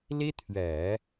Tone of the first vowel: high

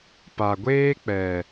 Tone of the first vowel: low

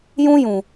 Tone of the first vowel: high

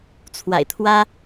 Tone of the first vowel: low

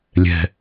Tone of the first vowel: low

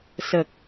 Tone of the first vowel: low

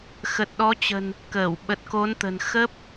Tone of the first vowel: low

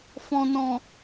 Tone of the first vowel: low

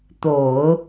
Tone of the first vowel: low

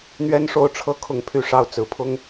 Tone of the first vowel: high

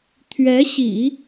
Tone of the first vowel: rising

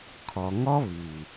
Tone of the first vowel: low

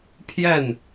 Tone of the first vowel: falling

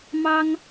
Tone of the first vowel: high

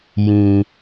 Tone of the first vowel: low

